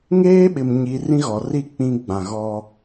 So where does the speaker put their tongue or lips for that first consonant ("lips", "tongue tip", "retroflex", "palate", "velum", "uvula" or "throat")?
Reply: velum